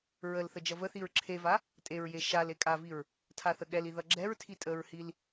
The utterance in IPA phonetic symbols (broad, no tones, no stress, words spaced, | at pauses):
ɹəlθə d͡ʒʌvəθiɹ ǁʰeva | tʼeɹje ʃal ekʼaviɹ | tʰaθəɠɛli ðʌɡ͡ǁɛɹtʰi tʼəɹhil